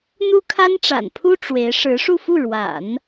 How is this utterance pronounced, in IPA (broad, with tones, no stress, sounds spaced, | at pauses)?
n̪ u˥ kʰ a˥ n ʈ͡ʂ a̰˨˩ n pʰ u˥ ʈ͡ʂ w e˧˥ ɪ̯ ʂ ɻ̩˧˥ ʂ u˥˧ f u˥˩ ɻ w a̰˨˩˦ n